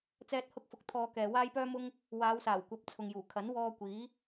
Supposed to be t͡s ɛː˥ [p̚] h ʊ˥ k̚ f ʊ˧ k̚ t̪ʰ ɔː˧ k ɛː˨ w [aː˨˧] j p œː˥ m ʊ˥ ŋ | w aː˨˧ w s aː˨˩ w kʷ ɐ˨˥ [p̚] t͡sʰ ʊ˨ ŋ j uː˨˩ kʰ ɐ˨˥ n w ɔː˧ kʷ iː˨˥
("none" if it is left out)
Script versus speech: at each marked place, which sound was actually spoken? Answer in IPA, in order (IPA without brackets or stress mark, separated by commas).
t̚, aː˥, p̚